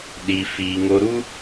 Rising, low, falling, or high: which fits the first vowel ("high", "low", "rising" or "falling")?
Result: low